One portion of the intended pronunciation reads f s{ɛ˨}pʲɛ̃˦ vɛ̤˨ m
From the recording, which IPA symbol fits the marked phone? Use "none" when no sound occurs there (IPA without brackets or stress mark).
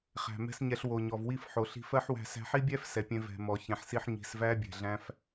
ɛ˨